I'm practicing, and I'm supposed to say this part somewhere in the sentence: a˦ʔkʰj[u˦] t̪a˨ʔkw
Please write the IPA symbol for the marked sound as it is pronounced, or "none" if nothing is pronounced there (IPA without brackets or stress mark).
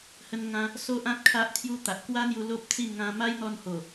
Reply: u˦